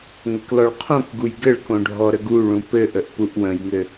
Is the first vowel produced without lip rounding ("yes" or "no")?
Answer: yes